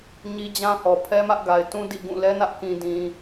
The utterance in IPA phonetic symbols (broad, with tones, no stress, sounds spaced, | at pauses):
ɲ i˦ d͡ʑ ã˦ h ɔ˨ pʰ ɛ˦ m ä˦ ʔ ɡ a˨ ɪ̯ t ũ˦ d ḭ˦˨ ɡ ũ˦˨ l ɛ˦ n ä˦ ʔ k ĩ˨ d ĩ˨